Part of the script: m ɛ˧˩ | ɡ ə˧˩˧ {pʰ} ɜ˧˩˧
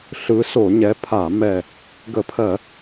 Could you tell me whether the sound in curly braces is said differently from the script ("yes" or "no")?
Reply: no